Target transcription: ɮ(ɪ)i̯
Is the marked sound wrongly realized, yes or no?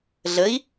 yes